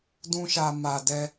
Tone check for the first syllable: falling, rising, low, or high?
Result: high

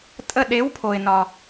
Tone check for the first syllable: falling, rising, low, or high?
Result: falling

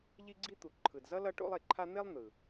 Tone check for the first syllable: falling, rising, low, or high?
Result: high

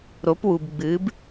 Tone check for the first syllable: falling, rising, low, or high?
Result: rising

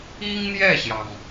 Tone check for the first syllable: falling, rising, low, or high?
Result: high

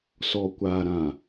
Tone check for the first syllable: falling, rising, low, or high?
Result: low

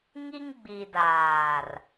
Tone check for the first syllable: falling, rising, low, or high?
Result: high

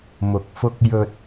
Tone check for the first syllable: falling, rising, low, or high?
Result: low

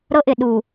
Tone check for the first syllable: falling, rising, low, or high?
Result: high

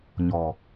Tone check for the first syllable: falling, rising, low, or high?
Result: low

